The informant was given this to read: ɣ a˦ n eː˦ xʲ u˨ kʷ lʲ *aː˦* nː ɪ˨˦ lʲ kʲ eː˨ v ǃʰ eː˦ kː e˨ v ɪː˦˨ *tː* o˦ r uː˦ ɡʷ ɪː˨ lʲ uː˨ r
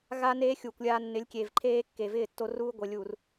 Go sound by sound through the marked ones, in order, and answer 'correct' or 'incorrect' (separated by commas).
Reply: incorrect, correct